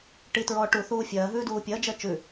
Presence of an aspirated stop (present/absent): absent